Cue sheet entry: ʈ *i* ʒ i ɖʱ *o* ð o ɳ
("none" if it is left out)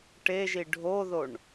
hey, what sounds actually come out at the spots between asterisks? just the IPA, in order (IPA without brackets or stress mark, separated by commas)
e, o